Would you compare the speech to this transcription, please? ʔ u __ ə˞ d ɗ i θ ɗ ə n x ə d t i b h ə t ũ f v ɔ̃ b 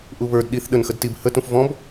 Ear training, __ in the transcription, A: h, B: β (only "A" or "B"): B